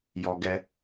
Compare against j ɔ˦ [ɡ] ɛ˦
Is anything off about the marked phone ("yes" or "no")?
no